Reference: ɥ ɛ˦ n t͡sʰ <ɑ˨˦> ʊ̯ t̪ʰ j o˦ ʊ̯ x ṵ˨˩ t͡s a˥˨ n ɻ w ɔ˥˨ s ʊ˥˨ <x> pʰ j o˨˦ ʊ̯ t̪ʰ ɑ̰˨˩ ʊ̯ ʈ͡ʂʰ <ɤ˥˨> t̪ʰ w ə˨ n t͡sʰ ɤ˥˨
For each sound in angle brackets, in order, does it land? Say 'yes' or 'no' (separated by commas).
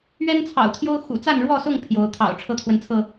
no, no, no